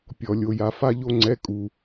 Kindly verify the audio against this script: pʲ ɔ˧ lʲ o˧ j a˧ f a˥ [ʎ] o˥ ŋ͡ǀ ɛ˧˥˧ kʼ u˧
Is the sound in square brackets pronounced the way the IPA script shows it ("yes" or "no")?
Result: yes